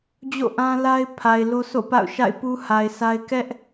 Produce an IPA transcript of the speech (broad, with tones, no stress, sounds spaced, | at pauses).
d͡ʑ o̰˦˨ ʔ ã˦ l a˦ ɪ̯ pʰ a˨ ɪ̯ l o˦ sʰ o̰˦˨ p a̰˦˨ ʊ̯ ʃ a̰˦˨ ɪ̯ p u˦ h a˨ ɪ̯ sʰ a˦ ɪ̯ k ɛ˦ ʔ